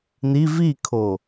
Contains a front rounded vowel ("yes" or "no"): no